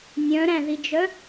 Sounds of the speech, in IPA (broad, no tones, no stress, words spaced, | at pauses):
nʲœ̃ɾæ̃ðid͡ʒœ